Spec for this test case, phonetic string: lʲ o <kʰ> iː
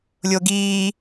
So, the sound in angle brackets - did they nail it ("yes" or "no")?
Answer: no